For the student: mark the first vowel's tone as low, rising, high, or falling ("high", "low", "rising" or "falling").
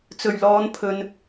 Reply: low